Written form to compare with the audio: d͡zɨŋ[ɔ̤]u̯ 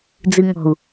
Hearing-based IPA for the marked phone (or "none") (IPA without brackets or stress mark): ɔ̤